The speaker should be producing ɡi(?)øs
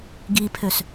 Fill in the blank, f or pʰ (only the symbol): pʰ